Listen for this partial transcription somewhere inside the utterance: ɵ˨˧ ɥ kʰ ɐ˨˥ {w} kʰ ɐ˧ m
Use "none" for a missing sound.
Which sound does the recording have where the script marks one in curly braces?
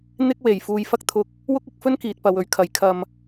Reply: j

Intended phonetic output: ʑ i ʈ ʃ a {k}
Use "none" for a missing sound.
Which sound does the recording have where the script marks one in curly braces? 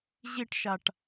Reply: ʈ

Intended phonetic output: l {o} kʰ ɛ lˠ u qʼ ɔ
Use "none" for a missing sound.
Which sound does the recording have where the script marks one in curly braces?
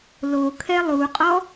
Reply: o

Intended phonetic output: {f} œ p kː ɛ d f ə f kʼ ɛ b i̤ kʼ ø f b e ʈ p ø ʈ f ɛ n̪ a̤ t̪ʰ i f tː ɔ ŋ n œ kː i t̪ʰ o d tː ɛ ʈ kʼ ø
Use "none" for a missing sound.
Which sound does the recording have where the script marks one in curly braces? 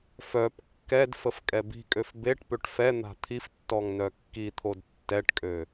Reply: f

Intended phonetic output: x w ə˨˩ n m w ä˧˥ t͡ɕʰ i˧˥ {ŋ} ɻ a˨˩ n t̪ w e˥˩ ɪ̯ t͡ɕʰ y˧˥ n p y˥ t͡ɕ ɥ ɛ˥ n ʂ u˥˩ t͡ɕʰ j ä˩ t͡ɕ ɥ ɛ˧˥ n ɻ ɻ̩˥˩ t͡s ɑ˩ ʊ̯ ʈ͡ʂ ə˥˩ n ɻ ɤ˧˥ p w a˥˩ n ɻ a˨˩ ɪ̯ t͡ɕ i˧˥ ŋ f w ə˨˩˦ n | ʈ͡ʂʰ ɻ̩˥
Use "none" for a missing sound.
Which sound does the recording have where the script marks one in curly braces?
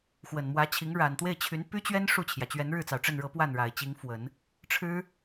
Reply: ŋ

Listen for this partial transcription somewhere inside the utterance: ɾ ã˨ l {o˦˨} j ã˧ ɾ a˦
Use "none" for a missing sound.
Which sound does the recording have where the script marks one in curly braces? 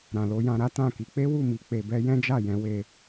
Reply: o˧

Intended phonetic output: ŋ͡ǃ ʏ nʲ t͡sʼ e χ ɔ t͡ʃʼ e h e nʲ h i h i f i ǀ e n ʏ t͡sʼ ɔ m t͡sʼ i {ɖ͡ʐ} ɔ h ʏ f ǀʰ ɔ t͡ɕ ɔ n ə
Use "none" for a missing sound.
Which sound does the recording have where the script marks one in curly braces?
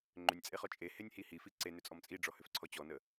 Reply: ɖ͡ʐ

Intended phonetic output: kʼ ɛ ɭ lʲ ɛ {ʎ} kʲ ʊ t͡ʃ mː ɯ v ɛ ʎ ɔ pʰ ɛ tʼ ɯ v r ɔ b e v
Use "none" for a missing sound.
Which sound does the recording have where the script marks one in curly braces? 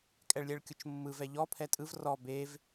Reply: ɭ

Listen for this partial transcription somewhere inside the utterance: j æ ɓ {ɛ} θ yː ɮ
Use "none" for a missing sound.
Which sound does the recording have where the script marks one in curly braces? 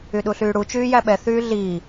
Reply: ɛ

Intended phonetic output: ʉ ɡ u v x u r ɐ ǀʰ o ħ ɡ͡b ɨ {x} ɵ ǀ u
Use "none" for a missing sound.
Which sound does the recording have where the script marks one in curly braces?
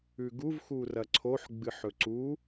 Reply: ħ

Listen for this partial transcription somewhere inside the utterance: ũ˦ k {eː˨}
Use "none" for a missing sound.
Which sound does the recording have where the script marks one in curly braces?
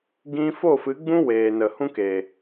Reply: eː˨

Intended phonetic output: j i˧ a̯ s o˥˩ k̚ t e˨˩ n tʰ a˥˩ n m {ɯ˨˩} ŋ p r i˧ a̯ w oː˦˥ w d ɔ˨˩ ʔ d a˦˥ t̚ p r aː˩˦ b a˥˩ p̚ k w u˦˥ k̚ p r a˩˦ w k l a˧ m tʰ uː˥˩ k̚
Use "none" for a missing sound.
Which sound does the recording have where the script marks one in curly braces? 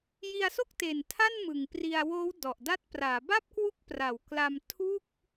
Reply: ɯ˨˩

